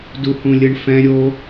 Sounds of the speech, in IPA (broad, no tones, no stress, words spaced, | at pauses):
duhũlʲɯɳfɛ̃ ɾʲo